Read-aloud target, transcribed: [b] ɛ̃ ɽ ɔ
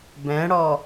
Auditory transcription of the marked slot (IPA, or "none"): b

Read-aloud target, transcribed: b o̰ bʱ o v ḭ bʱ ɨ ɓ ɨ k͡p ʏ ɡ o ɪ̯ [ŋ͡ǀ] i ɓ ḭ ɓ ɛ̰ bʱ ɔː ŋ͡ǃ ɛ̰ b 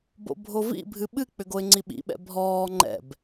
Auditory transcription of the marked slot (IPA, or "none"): ŋ͡ǀ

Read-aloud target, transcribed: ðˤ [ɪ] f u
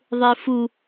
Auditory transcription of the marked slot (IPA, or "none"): ɪ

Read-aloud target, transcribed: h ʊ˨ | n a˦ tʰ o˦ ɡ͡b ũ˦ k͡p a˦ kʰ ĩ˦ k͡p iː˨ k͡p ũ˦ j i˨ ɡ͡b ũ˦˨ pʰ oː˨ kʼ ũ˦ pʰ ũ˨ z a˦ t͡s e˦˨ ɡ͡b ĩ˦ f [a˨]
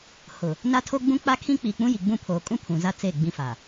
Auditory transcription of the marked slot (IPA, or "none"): a˨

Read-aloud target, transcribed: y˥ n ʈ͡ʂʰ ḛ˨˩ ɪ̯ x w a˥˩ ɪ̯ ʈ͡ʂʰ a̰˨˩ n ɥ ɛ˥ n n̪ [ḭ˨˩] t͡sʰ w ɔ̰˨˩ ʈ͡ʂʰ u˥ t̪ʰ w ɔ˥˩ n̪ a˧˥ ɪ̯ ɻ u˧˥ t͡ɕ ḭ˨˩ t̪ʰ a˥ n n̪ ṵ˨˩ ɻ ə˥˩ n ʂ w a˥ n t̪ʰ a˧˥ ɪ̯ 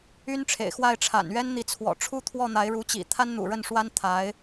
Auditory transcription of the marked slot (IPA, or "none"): i˧˥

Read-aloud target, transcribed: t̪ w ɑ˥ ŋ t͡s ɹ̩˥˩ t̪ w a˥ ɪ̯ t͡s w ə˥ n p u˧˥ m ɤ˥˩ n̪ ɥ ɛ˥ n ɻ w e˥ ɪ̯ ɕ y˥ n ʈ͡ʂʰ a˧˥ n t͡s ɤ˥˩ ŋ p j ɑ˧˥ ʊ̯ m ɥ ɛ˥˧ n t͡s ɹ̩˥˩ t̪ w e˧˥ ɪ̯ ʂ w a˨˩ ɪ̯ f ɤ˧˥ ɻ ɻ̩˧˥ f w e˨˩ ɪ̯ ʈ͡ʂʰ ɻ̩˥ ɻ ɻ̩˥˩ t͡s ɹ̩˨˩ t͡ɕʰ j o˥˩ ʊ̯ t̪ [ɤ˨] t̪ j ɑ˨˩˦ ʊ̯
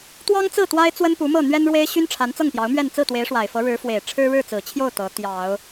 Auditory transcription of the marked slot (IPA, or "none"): ɤ˧˥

